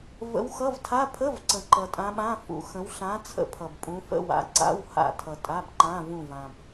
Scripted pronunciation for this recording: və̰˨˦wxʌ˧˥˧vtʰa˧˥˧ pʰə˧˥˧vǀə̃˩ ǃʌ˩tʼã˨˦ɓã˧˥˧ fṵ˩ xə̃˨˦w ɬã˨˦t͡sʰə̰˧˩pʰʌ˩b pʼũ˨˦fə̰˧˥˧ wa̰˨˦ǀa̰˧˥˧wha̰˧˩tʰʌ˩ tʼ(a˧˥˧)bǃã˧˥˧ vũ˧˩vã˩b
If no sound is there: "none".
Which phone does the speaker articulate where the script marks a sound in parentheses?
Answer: a˧˥˧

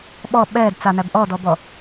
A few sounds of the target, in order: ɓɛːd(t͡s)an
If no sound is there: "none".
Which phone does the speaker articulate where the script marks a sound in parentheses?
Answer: t͡s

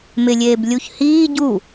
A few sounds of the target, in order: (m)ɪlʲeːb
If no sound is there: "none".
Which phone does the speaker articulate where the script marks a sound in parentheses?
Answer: m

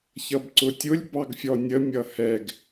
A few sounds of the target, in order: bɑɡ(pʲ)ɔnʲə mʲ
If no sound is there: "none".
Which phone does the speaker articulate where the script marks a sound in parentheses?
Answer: fʲ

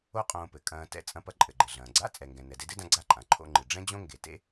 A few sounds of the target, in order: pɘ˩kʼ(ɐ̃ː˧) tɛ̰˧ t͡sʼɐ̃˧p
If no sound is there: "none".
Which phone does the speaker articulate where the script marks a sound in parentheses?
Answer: ɐ̃ː˧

